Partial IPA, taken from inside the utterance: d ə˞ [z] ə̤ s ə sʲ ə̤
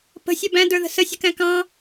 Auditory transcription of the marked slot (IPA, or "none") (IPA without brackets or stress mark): ð